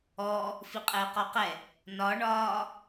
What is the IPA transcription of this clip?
ɔ | f i qʼ ɘː q ɔ q ɛ | n ɒ ɳ ɒː

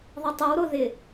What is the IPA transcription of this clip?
ðˤ e tˤ y w ɾ o ð ɪ

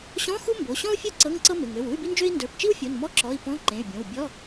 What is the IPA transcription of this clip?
ɕ ɔ̃˧˥˧ x u˥ m b o˩˧˩ ɕ ɔ̃˥ u̯ fʲ ə˞˥ ǀ ɤ˧˥˧ ŋ ǀ ɤ˥ m ɪ˩˧˩ ŋ ø˩˧˩ w u˧˥˧ y̯ b i˥ n d͡ʒ ø˥ i̯ n d ə˞˩˧˩ p t͡ʃ i˥ w fʲ o˩˧˩ n m ɔ˧˥˧ ǁ ɔ˩˧˩ i̯ p ɔ̃˧˥˧ ǃ ẽ˩˧˩ y̯ bʲ õ˩˧˩ w bʲ ɔ˧˥˧

